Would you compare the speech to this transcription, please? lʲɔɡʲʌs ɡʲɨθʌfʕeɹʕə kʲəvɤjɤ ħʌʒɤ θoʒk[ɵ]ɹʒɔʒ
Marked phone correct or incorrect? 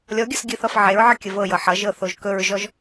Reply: correct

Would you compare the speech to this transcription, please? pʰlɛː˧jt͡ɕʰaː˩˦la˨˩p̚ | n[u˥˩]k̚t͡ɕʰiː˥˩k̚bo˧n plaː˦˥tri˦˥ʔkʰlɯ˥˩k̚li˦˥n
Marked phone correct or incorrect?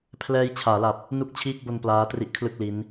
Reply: correct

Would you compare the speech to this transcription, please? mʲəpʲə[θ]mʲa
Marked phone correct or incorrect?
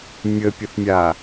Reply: correct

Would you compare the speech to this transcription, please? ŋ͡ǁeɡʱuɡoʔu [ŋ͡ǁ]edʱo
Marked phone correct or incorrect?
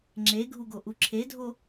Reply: incorrect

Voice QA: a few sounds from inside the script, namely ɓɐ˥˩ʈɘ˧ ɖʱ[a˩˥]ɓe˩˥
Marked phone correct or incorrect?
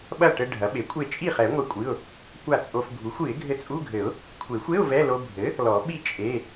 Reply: incorrect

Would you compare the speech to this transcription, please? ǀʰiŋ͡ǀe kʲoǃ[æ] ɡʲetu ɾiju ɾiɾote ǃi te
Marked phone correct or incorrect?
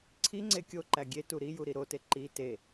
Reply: correct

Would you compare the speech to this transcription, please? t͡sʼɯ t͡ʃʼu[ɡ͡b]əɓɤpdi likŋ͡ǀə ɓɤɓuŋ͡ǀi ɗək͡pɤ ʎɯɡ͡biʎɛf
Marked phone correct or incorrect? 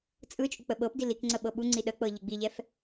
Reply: incorrect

